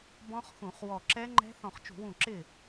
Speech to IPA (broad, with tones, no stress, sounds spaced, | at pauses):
b ɔ̃˦˥ χ x ũ˧˩˧ χ w ɔ˧˩ ǁ ɛ˦˥ ŋ͡ǃ ɛ̤˦˥ θ ɔ̃˧˩ χ t͡ʃ ṳ˧˩˧ w ũ˧˩ ǁ ɪ˥˩